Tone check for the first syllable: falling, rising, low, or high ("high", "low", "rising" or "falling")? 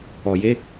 low